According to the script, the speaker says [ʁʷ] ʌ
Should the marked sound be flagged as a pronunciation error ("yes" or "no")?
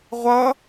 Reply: no